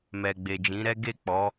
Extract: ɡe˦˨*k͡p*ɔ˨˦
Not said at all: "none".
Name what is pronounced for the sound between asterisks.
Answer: k͡p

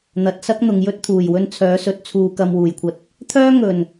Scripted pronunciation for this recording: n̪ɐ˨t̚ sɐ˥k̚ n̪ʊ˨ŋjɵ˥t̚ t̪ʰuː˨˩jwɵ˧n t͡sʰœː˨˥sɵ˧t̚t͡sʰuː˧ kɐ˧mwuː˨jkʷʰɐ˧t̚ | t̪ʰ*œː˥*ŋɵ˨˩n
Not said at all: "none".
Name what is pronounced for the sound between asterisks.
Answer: œː˥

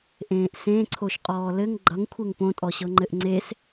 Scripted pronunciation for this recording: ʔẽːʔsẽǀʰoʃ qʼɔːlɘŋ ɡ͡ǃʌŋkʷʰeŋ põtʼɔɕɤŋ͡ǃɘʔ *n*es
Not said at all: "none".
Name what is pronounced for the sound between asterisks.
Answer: ŋ͡ǀ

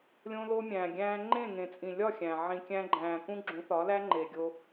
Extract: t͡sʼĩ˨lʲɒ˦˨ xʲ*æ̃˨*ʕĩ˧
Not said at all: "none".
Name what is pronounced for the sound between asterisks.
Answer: æ̃˨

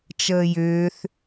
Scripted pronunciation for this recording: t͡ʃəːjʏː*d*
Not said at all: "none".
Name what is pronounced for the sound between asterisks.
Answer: θ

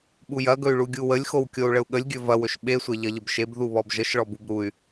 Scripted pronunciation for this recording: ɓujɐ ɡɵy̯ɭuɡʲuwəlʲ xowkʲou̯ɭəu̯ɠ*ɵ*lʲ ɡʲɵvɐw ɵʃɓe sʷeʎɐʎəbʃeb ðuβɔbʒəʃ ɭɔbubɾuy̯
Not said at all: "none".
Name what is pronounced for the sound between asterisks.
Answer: ə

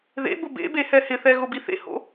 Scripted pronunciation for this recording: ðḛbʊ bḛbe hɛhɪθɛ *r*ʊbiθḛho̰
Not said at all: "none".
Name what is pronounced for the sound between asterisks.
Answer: ɣ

